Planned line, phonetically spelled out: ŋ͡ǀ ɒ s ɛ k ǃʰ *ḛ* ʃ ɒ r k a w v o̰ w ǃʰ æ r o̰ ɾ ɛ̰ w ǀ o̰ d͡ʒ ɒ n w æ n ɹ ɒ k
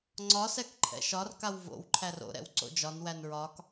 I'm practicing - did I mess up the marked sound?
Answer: yes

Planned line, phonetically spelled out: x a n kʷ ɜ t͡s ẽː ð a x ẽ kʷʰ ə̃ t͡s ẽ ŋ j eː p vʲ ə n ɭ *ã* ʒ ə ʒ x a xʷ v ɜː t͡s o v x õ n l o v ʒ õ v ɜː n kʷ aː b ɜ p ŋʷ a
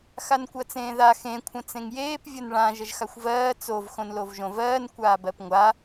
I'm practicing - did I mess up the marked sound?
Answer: no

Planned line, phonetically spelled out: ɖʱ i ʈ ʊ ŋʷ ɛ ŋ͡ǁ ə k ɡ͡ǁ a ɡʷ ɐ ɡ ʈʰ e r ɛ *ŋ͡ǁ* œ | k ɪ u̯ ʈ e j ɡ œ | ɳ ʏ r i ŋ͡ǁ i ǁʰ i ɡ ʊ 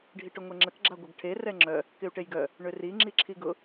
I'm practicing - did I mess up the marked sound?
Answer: no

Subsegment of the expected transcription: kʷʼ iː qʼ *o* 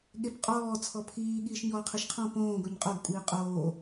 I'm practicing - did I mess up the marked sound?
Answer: yes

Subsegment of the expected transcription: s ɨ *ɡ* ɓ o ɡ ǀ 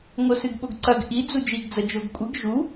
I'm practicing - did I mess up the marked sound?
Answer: no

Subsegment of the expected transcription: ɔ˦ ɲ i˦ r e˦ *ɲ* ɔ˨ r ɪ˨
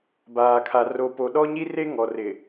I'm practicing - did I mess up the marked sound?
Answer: yes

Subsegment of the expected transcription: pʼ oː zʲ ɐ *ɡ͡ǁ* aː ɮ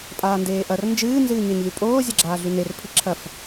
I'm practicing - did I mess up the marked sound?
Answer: no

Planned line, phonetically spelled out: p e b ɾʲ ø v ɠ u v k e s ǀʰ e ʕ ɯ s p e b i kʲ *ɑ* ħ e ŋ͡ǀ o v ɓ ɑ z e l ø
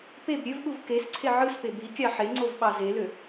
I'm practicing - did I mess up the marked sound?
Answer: no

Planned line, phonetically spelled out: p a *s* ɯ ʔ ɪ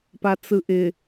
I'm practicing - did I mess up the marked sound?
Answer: yes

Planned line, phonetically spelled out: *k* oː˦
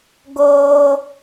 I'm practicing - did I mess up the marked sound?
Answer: yes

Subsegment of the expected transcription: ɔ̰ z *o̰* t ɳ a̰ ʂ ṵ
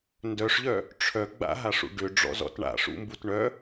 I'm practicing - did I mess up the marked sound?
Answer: yes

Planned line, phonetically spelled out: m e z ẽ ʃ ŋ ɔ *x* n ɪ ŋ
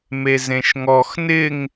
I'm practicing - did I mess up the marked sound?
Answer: no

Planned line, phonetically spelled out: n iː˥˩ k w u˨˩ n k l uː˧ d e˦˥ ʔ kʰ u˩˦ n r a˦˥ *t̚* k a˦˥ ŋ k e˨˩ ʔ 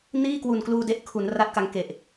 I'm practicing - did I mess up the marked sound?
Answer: no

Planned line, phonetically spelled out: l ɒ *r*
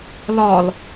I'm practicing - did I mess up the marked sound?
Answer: yes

